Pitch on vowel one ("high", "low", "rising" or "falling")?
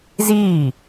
falling